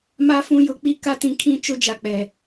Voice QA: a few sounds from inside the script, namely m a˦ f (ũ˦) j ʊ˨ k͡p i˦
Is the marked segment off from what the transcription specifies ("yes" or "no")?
no